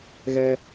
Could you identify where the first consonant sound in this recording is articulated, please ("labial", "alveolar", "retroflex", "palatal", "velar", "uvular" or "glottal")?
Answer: velar